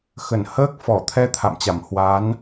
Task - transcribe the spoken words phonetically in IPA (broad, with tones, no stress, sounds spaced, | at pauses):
x ə˧˩ n h əː˦˥ k̚ f ɔ˧˩ t̪ʰ ɛ˧ t̪ʰ a̰˧˨ m t͡ɕ a˧˩ m h w a˨˦ n